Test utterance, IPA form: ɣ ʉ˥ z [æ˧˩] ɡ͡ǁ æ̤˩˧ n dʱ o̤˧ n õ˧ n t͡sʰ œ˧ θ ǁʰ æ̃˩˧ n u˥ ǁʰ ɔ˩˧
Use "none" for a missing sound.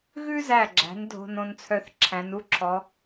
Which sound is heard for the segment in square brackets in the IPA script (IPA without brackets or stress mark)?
æ˧˩